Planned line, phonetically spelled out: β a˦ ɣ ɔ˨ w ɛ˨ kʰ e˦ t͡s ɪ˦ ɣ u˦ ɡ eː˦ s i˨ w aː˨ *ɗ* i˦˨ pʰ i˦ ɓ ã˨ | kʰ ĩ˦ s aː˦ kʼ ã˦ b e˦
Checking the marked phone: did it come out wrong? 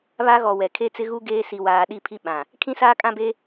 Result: no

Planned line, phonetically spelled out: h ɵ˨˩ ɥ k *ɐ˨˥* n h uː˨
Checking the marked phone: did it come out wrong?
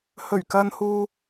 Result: yes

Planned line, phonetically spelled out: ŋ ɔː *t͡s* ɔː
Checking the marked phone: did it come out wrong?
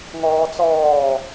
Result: no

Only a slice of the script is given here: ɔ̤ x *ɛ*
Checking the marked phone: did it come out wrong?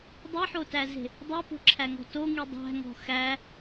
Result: yes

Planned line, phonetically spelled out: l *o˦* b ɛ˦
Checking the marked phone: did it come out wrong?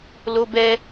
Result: no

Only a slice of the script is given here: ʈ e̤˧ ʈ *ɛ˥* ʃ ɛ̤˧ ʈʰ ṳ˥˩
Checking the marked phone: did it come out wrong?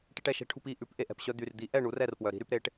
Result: yes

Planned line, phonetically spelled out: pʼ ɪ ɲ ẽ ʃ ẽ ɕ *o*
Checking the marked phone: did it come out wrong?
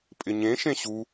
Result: yes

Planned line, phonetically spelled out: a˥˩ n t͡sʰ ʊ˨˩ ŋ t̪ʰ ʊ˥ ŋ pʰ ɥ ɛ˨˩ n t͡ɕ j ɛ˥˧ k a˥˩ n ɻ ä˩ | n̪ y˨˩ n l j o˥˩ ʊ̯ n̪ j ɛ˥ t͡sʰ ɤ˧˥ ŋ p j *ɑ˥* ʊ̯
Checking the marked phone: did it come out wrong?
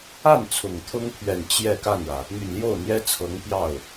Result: yes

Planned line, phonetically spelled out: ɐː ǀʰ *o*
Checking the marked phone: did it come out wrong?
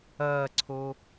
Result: no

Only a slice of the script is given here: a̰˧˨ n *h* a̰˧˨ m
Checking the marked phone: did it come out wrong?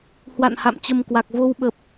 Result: no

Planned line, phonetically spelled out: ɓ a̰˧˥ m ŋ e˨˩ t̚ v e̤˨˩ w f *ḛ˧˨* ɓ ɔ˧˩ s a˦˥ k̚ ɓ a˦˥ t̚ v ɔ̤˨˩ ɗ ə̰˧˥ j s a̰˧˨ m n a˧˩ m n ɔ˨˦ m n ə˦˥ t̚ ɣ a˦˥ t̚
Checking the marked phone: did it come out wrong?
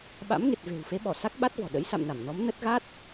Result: yes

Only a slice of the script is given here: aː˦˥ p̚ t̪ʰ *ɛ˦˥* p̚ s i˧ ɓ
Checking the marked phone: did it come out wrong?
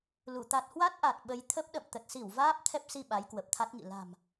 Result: no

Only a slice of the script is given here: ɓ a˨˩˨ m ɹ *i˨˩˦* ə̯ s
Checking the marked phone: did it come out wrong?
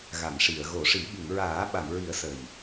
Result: no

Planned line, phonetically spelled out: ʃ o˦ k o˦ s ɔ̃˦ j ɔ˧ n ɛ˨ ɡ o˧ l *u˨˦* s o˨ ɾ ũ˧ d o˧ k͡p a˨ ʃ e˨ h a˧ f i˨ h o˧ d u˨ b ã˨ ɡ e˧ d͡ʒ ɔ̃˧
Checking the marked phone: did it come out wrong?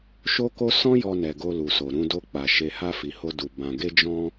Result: yes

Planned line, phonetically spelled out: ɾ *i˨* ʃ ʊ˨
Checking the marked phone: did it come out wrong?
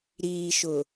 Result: yes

